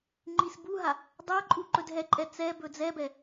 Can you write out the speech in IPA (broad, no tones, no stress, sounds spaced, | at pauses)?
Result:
ŋ͡ǃ i s b u ɦ a | dˤ a ǃʼ u ǃ ɵ d ɦ ɛ ǃʼ ɛ t͡s ɛ b ɵ d͡z ɛ b ɛ